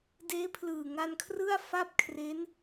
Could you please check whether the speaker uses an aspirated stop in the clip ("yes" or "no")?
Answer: yes